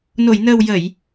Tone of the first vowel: low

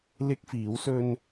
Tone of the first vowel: high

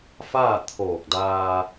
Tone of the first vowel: falling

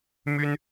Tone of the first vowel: high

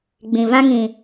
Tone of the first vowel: low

